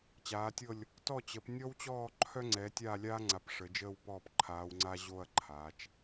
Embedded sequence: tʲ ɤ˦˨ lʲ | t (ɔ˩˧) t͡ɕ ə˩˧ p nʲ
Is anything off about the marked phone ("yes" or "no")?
yes